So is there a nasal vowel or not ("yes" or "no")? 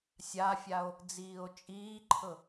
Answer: no